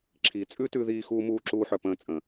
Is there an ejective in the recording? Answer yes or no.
yes